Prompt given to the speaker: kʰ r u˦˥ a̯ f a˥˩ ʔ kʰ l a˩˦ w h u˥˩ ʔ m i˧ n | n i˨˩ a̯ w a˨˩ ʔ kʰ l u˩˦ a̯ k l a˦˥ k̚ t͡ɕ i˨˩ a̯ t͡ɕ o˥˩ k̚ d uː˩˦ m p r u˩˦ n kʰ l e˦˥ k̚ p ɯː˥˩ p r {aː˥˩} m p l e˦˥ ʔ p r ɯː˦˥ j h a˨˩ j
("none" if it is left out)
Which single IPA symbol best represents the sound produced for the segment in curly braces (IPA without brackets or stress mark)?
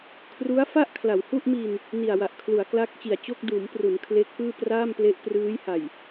aː˥˩